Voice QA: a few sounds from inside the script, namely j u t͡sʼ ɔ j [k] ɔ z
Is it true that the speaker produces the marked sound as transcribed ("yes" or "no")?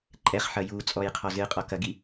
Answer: no